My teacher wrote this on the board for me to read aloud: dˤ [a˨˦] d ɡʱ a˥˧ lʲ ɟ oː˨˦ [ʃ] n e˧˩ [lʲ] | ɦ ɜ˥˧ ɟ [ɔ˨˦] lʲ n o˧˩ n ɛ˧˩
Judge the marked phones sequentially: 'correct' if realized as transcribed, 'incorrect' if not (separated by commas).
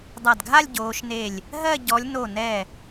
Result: incorrect, correct, correct, correct